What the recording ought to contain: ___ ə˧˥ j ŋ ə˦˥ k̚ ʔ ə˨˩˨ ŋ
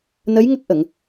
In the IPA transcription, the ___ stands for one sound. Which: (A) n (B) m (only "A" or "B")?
A